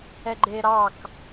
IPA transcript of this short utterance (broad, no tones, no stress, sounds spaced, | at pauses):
ɛ ɡ͡ǃ e ɾ ɑ k